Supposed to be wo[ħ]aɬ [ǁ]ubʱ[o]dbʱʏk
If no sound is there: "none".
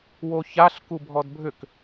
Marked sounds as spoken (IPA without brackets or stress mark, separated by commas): ç, k, ɔ